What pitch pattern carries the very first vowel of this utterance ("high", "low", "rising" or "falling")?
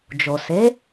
low